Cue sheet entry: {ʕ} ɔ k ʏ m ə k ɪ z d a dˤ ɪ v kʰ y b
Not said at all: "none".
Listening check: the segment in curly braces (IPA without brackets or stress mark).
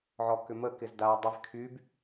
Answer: ʕ